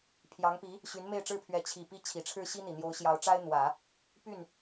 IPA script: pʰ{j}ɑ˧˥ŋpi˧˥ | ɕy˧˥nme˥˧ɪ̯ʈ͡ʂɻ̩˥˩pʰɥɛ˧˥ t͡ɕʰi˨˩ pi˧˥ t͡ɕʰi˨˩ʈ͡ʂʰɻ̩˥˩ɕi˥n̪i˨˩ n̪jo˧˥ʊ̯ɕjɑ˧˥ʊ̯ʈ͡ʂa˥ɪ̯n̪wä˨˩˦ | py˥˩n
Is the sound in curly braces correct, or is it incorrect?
correct